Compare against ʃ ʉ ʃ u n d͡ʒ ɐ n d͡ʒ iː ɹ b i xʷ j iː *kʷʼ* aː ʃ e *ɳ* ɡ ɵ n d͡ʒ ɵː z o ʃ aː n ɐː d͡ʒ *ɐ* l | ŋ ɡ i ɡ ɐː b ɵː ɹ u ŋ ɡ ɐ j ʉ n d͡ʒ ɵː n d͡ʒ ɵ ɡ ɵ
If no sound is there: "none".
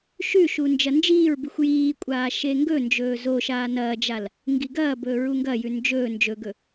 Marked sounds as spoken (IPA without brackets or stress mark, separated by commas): kʷʼ, ŋ, a